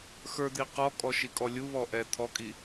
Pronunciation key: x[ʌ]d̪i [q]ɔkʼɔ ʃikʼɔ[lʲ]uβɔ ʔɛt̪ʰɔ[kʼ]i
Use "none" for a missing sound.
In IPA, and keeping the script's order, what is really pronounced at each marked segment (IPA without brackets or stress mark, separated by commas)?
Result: ə˞, q, lʲ, kʼ